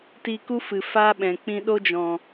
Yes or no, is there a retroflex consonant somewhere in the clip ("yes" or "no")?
no